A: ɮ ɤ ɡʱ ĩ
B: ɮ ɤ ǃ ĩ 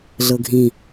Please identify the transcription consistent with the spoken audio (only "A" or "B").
A